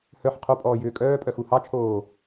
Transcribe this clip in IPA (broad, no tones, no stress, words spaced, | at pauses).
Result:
hœħ qʰopʼɔːjʏː kʼœːpʼœ xuhɑt͡ʃʰoː